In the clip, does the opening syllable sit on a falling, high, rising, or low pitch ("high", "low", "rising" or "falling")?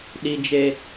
high